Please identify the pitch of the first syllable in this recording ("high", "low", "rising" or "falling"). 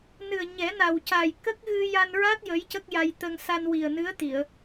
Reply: low